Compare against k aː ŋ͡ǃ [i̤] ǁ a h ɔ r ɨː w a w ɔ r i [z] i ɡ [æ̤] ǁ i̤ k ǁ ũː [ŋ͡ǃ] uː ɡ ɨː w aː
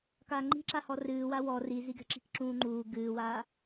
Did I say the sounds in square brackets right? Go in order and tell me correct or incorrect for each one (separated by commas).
correct, correct, incorrect, correct